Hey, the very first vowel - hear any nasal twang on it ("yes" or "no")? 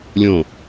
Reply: yes